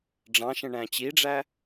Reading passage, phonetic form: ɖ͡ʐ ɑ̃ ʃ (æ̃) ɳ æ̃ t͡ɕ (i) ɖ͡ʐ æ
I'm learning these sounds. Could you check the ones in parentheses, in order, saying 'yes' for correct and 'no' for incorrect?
no, yes

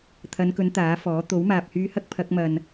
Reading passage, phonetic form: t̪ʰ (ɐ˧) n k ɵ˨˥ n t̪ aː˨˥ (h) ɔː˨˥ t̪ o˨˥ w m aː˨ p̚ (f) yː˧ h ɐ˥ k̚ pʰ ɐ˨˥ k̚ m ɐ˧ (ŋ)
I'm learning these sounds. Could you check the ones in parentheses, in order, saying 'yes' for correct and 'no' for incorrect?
no, no, no, no

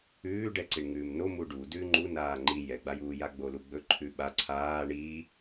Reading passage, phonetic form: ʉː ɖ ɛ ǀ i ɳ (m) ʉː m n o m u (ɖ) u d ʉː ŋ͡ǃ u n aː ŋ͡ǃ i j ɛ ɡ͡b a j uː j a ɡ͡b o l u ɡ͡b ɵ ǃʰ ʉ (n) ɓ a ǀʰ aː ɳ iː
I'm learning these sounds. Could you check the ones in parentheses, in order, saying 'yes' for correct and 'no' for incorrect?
no, yes, no

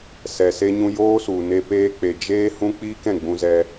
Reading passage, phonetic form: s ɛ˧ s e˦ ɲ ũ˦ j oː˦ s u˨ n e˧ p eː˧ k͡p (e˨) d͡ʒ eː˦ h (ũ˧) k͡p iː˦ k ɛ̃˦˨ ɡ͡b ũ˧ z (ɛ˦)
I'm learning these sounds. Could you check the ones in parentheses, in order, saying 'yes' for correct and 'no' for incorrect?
yes, no, yes

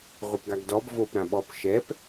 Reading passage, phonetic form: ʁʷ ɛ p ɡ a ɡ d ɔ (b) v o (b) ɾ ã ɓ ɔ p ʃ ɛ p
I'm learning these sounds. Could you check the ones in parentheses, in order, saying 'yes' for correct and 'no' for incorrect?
yes, no

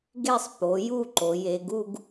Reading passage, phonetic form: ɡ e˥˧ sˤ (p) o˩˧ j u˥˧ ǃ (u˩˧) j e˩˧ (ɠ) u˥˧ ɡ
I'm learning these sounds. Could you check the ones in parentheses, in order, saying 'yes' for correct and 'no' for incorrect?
yes, no, no

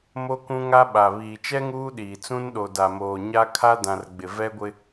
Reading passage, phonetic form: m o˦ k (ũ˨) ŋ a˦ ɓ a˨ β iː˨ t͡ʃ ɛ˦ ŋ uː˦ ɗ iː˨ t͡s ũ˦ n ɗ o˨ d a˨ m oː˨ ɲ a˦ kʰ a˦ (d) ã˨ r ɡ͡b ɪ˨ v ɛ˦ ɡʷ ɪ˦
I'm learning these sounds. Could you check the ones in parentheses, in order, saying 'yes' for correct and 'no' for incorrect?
no, yes

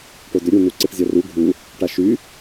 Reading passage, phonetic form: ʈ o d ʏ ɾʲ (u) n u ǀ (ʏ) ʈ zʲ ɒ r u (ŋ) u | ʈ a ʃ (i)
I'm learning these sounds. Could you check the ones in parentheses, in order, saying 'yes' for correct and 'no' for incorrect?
yes, no, no, no

